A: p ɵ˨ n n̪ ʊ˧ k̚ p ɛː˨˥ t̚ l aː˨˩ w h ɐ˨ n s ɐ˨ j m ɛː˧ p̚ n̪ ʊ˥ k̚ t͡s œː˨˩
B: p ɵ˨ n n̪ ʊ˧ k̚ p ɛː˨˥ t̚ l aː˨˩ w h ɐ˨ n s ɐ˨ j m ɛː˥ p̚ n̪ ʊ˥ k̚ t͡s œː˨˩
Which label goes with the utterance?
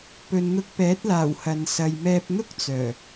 A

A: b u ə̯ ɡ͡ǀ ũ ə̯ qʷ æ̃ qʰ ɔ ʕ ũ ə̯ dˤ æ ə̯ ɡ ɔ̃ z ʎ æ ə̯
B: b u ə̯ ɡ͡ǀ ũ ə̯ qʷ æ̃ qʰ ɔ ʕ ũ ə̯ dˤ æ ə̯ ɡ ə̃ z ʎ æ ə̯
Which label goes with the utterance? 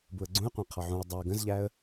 B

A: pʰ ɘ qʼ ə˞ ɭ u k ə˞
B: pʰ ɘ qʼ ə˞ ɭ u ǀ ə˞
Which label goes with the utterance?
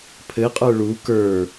A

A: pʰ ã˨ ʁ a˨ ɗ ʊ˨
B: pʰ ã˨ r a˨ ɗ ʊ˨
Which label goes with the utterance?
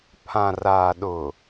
B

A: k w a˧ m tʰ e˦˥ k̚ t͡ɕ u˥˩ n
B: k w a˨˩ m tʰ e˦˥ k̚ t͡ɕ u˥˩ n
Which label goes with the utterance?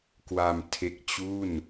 A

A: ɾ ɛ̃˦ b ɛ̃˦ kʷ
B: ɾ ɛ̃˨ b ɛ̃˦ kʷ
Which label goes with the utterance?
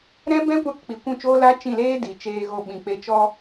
A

